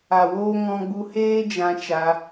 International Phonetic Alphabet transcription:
a˨ w oː˧ ŋ ɔ̃˧ ɡ͡b u˧ h eː˦ d͡ʒ ã˧ t͡ʃ a˧

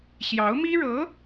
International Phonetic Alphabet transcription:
ɕ j ɑ˧˥ ʊ̯ m i˥ ɻ ɤ˧˥

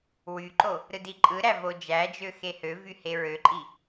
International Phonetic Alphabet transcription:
w y ǃ o | ɾ ɯ d i ǃʼ ɯ ɾ æ v o d͡ʒ æ d͡ʒ ø x e h ø v y h e ɹ ø ǃʼ i

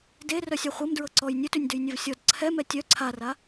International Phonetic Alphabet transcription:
d e r œ sʲ a χʷ ɤ m d ɹ ɤ ǀ ɔ j nʲ ø t ʉ nʲ d ʉ j nʲ œ v sʲ ɔ d ǀʰ ɛ m ɛ tʲ œ ǀʰ a r a

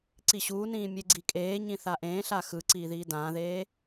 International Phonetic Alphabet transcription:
ǀ i ɕ uː n ĩː mʲ e ɡ͡ǀ i kʼ eː ɲ ĩ θ a ʔ ẽː ɬ a x ɯ ǀ iː ð iː d ãː ð eː

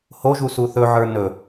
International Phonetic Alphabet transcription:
h o ʒ u s u θ ɵ ʕ ə˞ n ɵ

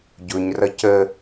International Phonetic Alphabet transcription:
ɟ ʊ ɲ r ʌ c ə

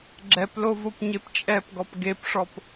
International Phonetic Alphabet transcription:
ɡ͡ǁ ɛ p l o v o p ɲ e p t͡ʃʼ ɛ p ɡ ɔ p ɡ e p ʂ ɔ p

